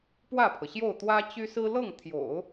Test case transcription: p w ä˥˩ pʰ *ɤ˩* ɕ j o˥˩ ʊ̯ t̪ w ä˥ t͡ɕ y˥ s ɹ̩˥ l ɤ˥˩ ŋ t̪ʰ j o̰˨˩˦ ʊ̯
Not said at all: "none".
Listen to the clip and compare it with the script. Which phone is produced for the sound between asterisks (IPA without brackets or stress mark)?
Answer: ɤ˩